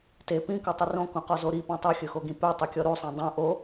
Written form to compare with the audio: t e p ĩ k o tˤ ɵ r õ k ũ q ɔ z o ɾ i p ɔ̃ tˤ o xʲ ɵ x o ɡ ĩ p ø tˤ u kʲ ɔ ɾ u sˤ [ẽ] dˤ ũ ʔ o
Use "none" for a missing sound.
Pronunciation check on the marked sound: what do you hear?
ẽ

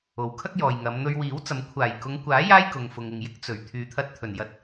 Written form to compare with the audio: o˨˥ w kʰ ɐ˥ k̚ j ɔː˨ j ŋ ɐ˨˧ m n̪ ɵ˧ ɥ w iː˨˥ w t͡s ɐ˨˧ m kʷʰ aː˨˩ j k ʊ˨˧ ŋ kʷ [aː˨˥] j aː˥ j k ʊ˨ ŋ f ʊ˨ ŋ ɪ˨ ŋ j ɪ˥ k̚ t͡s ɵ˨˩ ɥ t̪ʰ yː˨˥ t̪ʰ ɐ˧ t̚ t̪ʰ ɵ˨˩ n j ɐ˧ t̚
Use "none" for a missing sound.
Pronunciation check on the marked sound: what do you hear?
aː˨˥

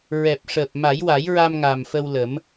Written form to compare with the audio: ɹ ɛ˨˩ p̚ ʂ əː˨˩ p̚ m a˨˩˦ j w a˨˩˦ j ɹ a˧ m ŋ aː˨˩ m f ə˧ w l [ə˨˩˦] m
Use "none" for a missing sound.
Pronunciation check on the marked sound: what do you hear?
ə˨˩˦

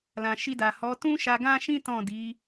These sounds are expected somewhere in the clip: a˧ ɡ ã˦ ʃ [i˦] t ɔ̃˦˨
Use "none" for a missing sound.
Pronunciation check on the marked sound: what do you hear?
ĩ˦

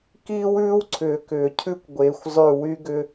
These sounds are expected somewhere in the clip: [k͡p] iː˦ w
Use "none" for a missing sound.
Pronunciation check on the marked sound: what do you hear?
k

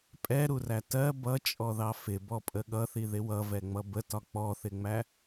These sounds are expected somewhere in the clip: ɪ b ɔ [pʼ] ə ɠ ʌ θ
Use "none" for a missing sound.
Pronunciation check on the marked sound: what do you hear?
pʼ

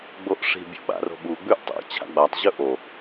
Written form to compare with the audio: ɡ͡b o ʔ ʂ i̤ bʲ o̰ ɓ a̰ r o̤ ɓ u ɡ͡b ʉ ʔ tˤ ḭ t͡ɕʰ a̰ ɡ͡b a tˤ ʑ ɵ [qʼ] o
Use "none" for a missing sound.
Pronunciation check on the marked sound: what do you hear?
ʔ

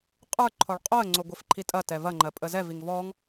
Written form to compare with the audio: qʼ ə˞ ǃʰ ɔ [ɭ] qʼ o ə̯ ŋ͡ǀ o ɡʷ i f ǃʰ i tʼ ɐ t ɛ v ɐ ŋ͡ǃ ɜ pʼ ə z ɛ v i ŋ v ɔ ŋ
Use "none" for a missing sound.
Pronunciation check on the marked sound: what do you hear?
ɭ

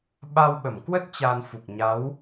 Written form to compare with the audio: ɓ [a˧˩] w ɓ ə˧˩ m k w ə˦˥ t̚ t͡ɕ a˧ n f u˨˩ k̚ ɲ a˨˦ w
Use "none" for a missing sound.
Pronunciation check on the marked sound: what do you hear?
a˧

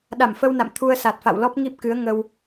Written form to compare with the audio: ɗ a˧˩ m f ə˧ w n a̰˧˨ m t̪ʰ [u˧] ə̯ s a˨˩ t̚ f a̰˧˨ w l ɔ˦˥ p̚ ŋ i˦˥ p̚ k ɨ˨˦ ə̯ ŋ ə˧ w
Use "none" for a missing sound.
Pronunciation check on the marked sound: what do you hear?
u˧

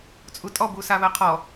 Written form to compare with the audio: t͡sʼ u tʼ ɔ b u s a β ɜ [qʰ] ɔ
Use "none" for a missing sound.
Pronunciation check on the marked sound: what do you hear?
qʰ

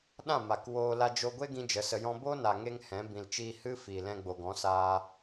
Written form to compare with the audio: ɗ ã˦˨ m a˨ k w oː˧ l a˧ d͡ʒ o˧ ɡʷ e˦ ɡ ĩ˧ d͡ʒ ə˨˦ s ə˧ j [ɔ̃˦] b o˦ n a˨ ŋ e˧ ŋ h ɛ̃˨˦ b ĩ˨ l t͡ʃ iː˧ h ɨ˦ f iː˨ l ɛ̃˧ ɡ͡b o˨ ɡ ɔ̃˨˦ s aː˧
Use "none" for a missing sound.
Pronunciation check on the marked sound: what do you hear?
ɔ̃˦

